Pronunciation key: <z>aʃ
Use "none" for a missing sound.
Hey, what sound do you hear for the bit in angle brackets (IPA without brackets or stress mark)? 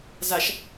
z